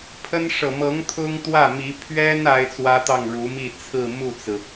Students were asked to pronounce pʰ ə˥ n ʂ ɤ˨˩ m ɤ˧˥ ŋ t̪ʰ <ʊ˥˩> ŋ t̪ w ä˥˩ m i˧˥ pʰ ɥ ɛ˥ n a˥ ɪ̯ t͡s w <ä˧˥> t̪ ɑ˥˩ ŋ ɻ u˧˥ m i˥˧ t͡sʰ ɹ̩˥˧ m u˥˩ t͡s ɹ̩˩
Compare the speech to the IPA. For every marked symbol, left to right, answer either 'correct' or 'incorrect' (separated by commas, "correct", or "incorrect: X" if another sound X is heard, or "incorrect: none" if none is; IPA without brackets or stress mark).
incorrect: ʊ˥, incorrect: ä˥